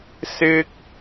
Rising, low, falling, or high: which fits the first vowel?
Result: high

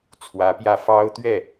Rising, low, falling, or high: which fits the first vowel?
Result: rising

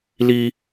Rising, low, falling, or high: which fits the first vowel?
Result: high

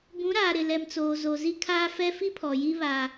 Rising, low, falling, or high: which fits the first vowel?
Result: rising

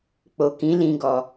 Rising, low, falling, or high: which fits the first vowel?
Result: low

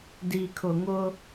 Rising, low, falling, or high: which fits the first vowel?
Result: low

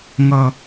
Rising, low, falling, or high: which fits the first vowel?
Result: low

